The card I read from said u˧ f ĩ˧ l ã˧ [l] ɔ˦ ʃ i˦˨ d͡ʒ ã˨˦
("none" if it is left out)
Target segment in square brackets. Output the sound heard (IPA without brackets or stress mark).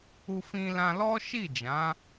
l